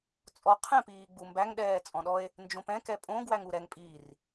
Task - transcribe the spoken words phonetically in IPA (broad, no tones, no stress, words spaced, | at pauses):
t͡sʼɔ qʰɛ̃piːɡ͡bumbæŋ ɗɛːt͡sʼɔ̃ɗɔe̯ | nd͡ʒõpɛ̃ kɛpʼõ ɡwæŋuɾɛŋ pʼiːr